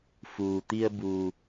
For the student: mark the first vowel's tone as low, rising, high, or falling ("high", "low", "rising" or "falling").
low